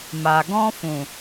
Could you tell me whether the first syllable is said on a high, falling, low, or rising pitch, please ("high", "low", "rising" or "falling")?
low